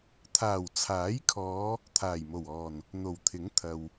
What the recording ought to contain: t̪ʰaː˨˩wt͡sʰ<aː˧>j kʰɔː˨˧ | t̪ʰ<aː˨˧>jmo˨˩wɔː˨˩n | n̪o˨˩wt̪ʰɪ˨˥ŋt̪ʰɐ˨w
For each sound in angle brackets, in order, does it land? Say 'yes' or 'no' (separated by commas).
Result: no, no